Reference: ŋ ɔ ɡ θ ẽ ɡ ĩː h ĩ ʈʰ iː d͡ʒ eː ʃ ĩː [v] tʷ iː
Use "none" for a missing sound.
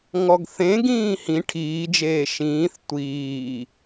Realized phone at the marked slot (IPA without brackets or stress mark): θ